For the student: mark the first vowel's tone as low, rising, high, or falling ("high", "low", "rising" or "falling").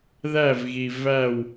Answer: falling